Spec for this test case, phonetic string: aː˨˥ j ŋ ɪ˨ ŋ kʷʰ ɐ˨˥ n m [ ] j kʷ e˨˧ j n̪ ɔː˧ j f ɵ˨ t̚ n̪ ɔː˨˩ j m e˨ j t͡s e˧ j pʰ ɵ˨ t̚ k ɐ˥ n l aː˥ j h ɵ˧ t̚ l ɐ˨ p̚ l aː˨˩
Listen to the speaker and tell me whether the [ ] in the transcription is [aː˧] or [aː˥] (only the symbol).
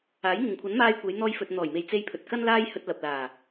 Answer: aː˧